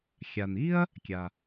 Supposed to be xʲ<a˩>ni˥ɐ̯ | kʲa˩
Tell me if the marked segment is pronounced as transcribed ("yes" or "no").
yes